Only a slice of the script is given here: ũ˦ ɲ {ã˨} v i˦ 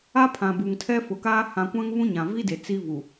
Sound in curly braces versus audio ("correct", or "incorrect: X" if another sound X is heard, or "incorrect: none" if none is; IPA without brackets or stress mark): correct